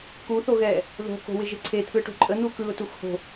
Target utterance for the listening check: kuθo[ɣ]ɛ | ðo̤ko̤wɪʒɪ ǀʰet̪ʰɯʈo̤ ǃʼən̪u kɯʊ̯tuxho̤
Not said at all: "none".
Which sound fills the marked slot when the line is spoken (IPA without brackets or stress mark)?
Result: ɣ